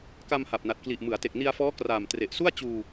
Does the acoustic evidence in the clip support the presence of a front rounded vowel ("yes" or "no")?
no